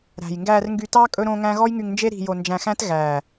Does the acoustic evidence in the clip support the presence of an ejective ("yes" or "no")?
yes